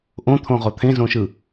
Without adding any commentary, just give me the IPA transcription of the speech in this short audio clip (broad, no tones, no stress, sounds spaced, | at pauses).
ʔ õ t̪ʰ õ ʁ o t̪ʰ ẽ z õ ʃ ɯ